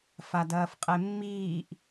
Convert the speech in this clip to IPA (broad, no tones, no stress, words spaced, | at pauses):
fadɐːfqʼemːiːʔ